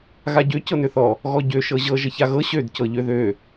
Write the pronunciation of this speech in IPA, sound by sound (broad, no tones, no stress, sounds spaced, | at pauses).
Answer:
ɣ a ɟ ø c ɤ n ø θ ɔ | ɣ ɔ ɟ ø ʃ ɤ ʑ ɤ ʒ ə ç a ɣ ɤ ɕ ø d c ɤ ʎ ø ð ø